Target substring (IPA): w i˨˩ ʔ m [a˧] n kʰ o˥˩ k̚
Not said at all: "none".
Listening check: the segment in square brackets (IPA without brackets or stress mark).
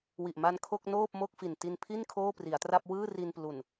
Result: a˧